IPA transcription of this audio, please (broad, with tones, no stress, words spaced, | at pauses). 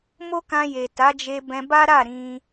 mo˦kã˧je˨ ta˨˦d͡ʒe˧bɛ̃˧ ba˦ɾa˦˨ ɾĩ˧